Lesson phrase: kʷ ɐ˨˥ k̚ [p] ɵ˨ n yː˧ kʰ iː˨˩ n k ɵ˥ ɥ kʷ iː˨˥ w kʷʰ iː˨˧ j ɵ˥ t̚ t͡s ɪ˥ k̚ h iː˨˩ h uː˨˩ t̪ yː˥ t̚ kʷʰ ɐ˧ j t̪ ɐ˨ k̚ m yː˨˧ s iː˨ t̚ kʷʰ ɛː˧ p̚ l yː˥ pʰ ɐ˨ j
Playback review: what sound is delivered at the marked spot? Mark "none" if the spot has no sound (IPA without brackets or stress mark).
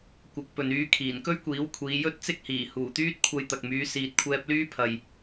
p